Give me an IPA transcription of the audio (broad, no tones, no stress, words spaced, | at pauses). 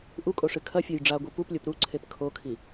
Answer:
ʔukʼoʂɨ kʰɐfʲoj ɖ͡ʐaɡʷi puplʲop ɾuǀʰep kʰokʰi